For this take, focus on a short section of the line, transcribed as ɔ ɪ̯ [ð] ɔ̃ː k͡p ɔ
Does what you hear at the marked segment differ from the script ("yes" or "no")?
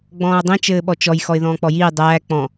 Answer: no